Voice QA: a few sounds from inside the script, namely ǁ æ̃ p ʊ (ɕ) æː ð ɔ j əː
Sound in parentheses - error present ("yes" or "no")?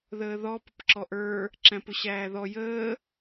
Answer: no